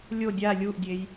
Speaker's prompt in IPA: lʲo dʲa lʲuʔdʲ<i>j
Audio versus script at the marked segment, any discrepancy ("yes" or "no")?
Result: yes